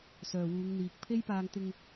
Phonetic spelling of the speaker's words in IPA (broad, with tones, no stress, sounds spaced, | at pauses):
s œː˨ w uː˨˧ ŋ n̪ iː˨ k̚ pʰ e˥ j p aː˧ ŋ t̪ ɪ˧ ŋ